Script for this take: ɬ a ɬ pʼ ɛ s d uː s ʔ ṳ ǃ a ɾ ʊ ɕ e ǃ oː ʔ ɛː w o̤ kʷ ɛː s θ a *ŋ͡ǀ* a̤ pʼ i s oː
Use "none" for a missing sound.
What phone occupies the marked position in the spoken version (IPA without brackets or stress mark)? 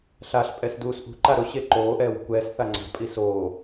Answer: ŋ͡ǀ